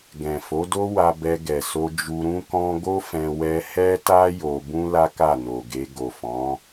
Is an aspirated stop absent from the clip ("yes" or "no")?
yes